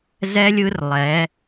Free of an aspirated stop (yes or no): yes